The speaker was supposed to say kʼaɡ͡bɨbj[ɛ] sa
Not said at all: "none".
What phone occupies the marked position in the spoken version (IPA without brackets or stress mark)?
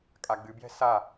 ɛ̤